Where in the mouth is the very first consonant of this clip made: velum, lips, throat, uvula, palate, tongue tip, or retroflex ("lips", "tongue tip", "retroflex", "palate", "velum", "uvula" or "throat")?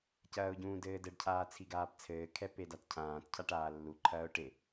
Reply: palate